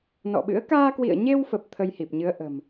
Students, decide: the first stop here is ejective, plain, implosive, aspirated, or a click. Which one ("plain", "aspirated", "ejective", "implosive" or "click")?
implosive